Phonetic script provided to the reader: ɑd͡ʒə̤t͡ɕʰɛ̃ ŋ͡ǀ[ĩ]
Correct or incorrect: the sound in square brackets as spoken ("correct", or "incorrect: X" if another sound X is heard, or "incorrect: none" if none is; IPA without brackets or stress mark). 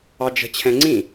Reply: correct